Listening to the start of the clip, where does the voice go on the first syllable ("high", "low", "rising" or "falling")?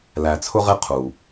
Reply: low